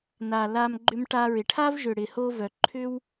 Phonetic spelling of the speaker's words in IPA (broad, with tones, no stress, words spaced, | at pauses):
na˨la˧m ɡ͡ǃʏ˧mʈa˧ɹɪ˨ʈʰa˦v ʒʏ˨ ɽɪ˨ho˧vœ˨ ǃʰʏ˦w